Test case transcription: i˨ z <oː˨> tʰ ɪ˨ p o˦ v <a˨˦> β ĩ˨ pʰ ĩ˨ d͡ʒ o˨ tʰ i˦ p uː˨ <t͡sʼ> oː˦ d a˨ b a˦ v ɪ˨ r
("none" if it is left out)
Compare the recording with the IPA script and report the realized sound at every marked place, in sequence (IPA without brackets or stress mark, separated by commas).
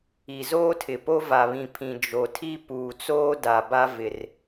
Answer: oː˦, a˨, t͡s